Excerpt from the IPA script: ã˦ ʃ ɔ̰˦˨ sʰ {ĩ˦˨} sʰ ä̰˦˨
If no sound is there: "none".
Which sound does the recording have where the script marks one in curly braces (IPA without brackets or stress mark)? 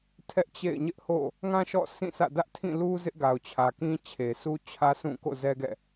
ĩ˦˨